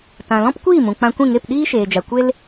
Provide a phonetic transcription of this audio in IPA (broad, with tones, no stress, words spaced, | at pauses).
tã˨lɔ̃˦pkʷiː˦˨ mũ˨k͡pã˧kʷĩ˦˨ŋe˦˨p ɗiː˦ʃeː˨d͡ʒa˨kʷe˦l